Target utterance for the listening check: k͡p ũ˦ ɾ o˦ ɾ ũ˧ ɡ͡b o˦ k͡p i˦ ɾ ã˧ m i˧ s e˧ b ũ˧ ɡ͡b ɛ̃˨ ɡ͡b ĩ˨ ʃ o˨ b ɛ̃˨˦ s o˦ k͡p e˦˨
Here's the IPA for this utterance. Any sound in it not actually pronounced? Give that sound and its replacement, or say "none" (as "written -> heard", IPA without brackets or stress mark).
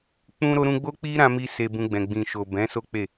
none